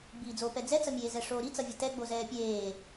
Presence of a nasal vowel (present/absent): absent